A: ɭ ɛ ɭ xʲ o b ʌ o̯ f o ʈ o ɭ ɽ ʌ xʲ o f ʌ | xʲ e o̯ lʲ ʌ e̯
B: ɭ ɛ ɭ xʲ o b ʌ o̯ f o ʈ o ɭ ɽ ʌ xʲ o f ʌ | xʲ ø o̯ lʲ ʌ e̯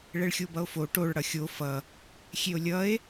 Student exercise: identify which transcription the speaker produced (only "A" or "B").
A